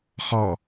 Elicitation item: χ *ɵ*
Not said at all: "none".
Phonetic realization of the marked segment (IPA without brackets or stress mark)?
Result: ɔ